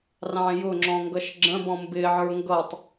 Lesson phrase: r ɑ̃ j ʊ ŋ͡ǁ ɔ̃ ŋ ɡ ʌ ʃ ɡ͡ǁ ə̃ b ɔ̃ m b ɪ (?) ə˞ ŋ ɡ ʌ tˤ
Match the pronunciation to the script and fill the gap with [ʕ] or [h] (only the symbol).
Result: ʕ